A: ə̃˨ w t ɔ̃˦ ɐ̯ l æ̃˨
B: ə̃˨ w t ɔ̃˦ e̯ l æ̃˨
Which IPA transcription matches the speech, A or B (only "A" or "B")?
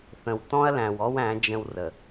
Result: A